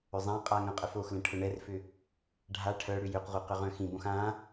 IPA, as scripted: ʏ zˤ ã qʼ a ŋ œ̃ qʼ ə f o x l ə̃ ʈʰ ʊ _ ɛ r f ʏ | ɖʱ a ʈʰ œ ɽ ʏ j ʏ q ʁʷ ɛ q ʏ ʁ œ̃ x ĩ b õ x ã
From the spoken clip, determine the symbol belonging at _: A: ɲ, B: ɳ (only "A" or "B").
B